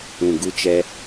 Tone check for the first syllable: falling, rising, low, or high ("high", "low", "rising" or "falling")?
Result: low